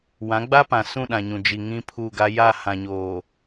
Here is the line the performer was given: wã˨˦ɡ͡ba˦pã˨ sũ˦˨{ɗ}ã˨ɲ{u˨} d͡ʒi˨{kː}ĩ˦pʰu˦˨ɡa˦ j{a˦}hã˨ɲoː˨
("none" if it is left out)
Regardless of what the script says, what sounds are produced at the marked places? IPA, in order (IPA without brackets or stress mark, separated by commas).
ɗ, ũ˨, ŋ, a˦˨